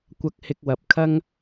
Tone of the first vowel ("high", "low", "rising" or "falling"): high